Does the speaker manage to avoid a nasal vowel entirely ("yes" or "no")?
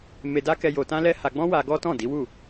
no